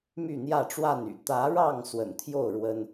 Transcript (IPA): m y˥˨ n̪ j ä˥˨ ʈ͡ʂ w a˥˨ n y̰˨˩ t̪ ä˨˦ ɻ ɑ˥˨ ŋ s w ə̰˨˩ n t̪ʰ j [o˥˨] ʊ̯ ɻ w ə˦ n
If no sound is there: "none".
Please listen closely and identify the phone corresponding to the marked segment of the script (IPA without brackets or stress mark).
o˥˨